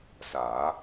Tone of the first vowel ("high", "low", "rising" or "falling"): rising